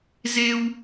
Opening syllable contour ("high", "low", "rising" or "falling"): high